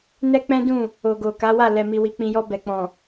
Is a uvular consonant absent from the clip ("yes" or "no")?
yes